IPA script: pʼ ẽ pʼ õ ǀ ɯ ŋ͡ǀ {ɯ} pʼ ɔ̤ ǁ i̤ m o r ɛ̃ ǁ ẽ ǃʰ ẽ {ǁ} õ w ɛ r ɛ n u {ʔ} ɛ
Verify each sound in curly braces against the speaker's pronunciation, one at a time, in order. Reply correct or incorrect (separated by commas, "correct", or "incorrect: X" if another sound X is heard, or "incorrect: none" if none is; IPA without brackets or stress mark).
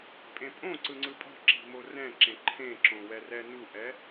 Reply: correct, correct, correct